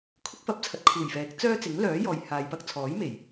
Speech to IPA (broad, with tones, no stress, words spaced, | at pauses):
kʰʊ˥k̚fɐ˨˥p̚t͡sʰɐ˨˥t̚ kʰuː˨˩jfɛː˨˥k̚ t͡sœː˥t͡sɪ˨˥ŋlœː˨˥ jɔː˨jhaː˨jpɐ˥k̚ t͡sʰɔː˨˥jme˨˩j